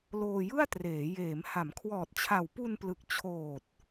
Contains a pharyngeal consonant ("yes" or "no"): no